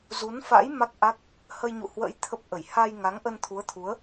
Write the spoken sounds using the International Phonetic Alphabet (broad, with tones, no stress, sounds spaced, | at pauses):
z u˨˦ n f a̰˧˥ j m a˦˥ k̚ ʔ a˦˥ k̚ | h ə˧ j ɲ ṵ˧˨ h w ə̰ː˧˥ j t̪ʰ ə˦˥ p̚ ʔ ə˧˩ j h a˧ j ŋ a˨˦ ŋ ʔ ə˧ n t̪ʰ u˨˦ ə̯ t̪ʰ u˨˦ ə̯